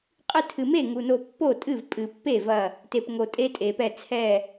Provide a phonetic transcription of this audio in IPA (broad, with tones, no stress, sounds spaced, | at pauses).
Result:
qʼ ɨ˧ tʰ ɨ˩ m e˥˩ ŋ u˩ n o˧˩ pː o˥˩ tʼ ɨ˥˩ v pʼ ɨ˧˩˧ pː e˥˩ v ɐ˧˩ | t e˩ p ŋ o˩ tʼ e˧ tʼ e˩ p ɛ˧˩ t͡sʰ ɛ˧˩